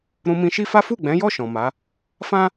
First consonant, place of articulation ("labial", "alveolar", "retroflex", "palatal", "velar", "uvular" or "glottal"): alveolar